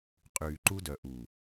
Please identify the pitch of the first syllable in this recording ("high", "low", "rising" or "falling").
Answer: low